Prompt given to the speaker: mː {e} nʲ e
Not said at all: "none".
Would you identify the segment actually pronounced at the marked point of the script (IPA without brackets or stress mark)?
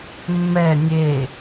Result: ɛ